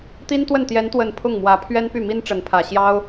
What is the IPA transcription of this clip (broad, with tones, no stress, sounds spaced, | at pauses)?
t̪ i˥ n t̪ w ə˥˩ n t̪ j ɛ˧˥ n t̪ w ə˨˩ n pʰ ʊ˥˩ ŋ m w ä˧˥ pʰ ɥ ɛ˥ n p y˥˩ m i˥ n ʈ͡ʂ ə˧˥ n pʰ ä˨˩ ɕ j ɑ˥ ʊ̯